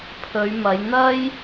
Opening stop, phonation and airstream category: aspirated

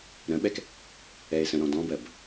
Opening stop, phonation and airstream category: implosive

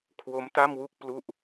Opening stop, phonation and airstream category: aspirated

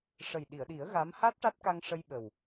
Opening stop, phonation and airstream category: implosive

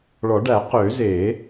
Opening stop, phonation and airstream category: plain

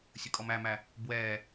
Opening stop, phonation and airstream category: ejective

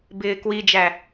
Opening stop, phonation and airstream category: plain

